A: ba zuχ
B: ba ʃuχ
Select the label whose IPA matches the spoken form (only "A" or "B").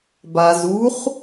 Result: A